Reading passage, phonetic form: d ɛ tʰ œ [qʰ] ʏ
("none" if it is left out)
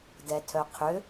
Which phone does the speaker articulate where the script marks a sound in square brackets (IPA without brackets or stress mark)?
qʰ